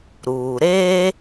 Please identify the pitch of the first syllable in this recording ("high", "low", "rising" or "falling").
low